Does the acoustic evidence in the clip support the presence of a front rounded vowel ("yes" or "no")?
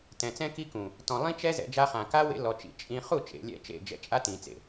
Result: no